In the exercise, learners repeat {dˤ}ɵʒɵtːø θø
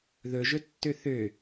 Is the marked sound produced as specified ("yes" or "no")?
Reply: no